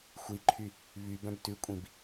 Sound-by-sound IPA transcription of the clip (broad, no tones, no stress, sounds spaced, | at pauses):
xʷ i ǃʰ y | β y b œ̃ b t ʉ kʷʼ ĩ b